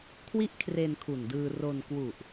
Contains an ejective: no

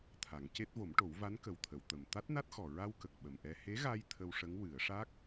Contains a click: no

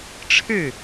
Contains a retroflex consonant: yes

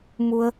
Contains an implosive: no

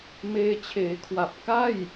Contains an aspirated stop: yes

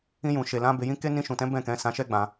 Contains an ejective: no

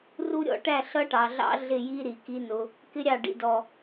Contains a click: no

